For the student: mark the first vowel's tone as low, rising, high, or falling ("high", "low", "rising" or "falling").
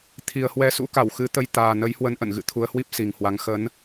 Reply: low